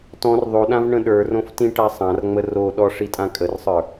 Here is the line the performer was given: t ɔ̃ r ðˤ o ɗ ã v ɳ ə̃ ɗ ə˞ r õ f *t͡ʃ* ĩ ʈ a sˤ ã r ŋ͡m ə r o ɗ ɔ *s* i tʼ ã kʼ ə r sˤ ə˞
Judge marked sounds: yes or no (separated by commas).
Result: no, no